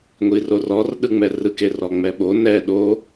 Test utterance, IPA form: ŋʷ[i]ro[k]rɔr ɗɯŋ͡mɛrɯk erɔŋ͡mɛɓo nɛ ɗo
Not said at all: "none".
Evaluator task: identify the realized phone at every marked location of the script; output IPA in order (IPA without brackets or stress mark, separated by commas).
i, none